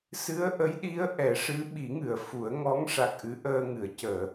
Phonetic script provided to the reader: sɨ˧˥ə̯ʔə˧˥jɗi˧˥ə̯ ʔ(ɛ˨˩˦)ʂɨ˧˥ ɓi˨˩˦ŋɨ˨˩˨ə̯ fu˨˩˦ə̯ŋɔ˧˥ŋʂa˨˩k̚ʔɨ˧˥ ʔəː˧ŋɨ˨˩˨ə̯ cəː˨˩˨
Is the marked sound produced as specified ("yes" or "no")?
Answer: yes